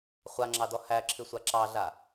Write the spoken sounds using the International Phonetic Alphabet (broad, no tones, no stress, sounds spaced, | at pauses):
χʷ a ŋ͡ǁ ɑ d ɔ h æ ǁʰ ɨ sʷ a ǁ ɑ ɮ a